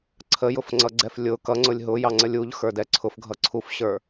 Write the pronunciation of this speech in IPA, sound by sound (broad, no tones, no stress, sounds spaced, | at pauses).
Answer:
ǀʰ ə j ʊ f ŋ͡ǀ ʌ ɡ͡ǀ ɛ f lʲ ʊ k ʌ ŋ͡ǀ ʊ lʲ ɦ ʊ j ɑ ŋ͡ǀ ə lʲ u ʎ x ə˞ d ɛ ǀʰ ʊ f ɡʱ ʌ ǀʰ u f ɕ ə˞